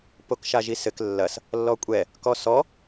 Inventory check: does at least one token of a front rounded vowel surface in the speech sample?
no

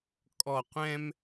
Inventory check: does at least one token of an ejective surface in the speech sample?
yes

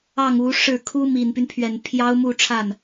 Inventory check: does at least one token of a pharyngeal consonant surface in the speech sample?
no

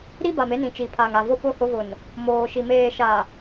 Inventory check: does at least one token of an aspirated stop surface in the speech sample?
yes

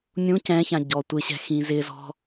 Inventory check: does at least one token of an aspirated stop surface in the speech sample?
no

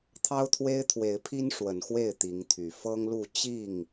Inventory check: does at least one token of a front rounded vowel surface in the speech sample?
yes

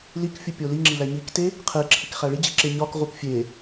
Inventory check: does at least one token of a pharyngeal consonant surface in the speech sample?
no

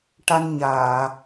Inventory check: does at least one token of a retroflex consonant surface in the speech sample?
yes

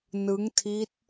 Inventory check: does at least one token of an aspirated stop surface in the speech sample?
yes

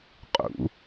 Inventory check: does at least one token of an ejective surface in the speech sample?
yes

